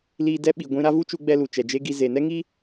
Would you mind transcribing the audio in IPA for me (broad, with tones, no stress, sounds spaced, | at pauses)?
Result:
l iː˧ d ɛ˧ ɓ i˨ ɡʷ ĩ˧ ɾ a˦ v u˦ t͡ʃ u˧ ɡ͡b ɛ˧ l u˨ t͡ʃ ɛ˨ d͡ʒ e˦ ɡ i˧ z e˨ n ɛ˦ ŋ i˦